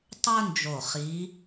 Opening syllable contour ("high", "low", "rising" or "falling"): high